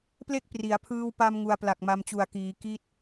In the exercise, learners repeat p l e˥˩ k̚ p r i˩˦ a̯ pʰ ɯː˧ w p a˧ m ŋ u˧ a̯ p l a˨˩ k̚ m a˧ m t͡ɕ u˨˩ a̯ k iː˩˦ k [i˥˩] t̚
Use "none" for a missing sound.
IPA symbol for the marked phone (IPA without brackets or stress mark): i˥˩